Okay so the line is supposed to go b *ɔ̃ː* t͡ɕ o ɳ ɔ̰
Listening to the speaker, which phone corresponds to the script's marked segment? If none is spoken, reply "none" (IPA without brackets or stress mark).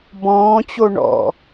ɔ̃ː